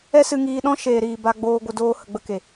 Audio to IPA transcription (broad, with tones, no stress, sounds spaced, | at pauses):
ɛ˦ s ɨ˧ ŋ iː˧ ɗ ɔ̃˦ ʃ eː˨ ɾ iː˨ b a˧ ɡ͡b oː˧ ɡʷ ə˧ d oː˦ h ə˧ ɡ͡b ə˦ k e˨